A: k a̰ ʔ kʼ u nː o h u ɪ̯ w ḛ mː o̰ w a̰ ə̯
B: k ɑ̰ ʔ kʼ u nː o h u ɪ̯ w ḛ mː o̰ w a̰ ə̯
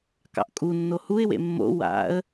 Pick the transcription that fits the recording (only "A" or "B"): B